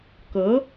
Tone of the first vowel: rising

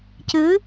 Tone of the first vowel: rising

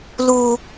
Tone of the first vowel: high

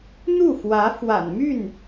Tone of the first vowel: falling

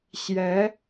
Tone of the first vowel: rising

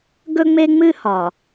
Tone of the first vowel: high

